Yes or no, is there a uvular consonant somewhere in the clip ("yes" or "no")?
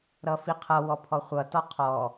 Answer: yes